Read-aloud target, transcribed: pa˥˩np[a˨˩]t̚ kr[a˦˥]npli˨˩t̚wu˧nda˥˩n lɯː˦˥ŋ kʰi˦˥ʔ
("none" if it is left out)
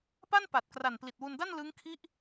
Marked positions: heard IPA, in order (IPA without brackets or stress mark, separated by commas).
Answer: a˨˩, a˨˩